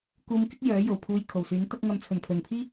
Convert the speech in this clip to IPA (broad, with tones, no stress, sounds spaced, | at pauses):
k uː˧ m k ɪ˥ k̚ j œː˨˥ j o˨˩ w pʰ uː˧ j kʰ o˨˩ w s yː˨˥ n t̪ ɐ˧ k̚ ŋ ɐ˨ m t͡sʰ ɵ˨˩ n pʰ ɵ˨˩ n pʰ iː˥